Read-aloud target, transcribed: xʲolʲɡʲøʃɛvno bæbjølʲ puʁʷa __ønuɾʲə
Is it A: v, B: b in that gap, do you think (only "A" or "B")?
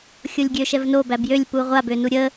B